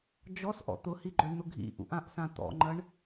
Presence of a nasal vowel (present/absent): present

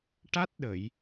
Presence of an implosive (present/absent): present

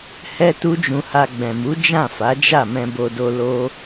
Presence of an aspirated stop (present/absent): absent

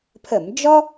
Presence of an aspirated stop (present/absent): present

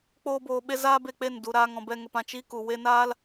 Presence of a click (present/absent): absent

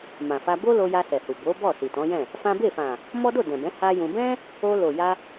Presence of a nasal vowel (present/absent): present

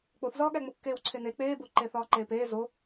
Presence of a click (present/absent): present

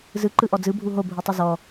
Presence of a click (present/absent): present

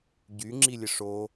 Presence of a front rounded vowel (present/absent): present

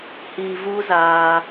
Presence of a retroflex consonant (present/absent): absent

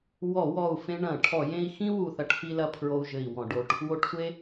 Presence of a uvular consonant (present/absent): absent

